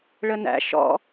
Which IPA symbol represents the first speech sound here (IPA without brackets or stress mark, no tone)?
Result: ɭ